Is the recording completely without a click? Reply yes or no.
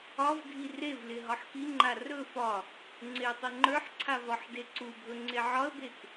no